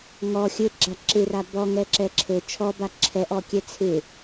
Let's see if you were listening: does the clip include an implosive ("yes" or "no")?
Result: no